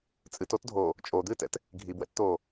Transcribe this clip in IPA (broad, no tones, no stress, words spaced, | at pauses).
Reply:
t͡sʼɨtotdʱoː | t͡ʃʼod̪ɨːtɛ̰t | ɡʱibwɛ̰tt̪oː